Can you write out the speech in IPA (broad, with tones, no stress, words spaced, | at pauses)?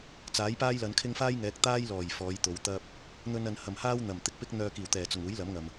t͡saː˨˥jpaː˥jlɐ˨˧nkʰɪ˥ŋ faː˥jŋɛː˨˥k̚t̪aː˥jlɔː˨˩j fɔː˨˧jt̪o˨˧wt̪ɐ˥p̚ | n̪ɵ˧nɐ˨nhɐ˨˩mhaː˥w n̪ɐ˨˩mt̪ɪ˧k̚pɪ˥k̚ n̪œː˧kiː˨˩wt̪ɛː˨˩t͡sʊ˨˩ŋ uː˨˥jlɐ˨˥mŋɐ˨m